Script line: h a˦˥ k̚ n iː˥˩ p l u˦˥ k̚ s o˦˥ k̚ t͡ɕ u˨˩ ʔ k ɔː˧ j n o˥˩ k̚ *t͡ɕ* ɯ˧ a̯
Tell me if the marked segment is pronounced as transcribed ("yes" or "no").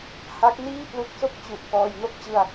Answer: yes